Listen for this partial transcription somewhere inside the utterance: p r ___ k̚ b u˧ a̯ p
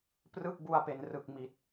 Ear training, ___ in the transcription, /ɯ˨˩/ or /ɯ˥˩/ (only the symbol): ɯ˥˩